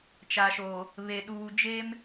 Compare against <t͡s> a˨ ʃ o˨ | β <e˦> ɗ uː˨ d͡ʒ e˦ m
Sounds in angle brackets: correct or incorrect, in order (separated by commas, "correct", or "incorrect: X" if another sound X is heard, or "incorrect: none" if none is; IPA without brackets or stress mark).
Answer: incorrect: t͡ʃ, incorrect: e˨